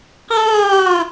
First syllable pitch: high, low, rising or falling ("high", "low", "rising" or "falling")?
falling